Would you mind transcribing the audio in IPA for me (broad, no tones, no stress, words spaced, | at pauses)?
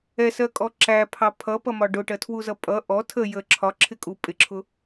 ɛsɜkʼɔ ǁæpʰɑ pʰʌpʌmɒ ɖʊʈɜtʰwuzʌ pʼʌ ʔɔ tʰə jə ǁʰɒǁʰɪkʼu pʼɪǁʰʊ